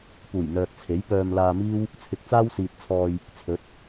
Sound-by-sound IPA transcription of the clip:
puː˨˩j n̪œː˨k̚t͡sʰe˨˥jpœː˧m laː˧miː˥w | t͡sʰɪ˨˥k̚t͡saː˥wsiː˨t̚t͡sʰɔː˧j | t͡sʰɵ˨˥t̚

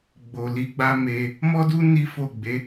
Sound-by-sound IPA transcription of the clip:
ɡ͡bo˨li˨˦ɡ͡ba˦me˧ | mɔ˦du˦ ni˦fo˦˨ ɡ͡be˨˦

